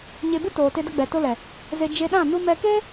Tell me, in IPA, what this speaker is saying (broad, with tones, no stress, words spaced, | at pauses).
ɲe˧bɨ˦ toː˨te˧də˧ɡ͡bɛ˨ to˧lɛ˨ | ze˧d͡ʒe˧ɗã˦˨ nu˦ mɛ˧ keː˦